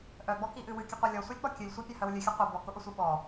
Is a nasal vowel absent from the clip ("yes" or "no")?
yes